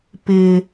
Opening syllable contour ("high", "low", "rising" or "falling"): high